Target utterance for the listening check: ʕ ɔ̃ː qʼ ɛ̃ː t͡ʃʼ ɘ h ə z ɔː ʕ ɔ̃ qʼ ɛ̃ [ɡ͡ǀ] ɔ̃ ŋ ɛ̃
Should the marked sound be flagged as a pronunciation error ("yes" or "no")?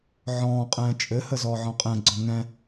no